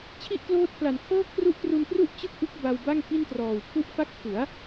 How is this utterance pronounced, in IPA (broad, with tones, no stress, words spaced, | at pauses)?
t͡ɕʰi˥˩ʔkloː˦˥t̚pʰla˨˩n kʰɤː˥˩kʰru˦˥ʔtru˧npru˥˩ʔ t͡ɕɯ˥˩k̚ʔɯ˦˥k̚ ba˧wba˥˩ŋ ki˥˩ntrɔː˨˩wpʰu˥˩ʔ fa˦˥k̚pʰu˩˦a̯